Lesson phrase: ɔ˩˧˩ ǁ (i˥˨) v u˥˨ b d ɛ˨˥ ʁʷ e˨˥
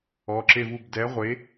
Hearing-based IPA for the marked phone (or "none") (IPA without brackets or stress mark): e˥˨